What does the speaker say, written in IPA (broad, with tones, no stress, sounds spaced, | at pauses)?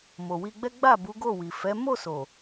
m o˨ w i˧ ɡ͡b ɛ˦ ɡ͡b a˦˨ b u˨˦ ɡ o˦˨ w i˨ f ɛ˨˦ m o˦˨ s o˨